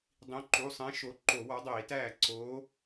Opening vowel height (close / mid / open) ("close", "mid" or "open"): close